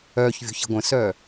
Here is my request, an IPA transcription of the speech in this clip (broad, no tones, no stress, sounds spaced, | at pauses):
œː ç vʲ o̤ ç i̤ ɡʷ ə̃ s œː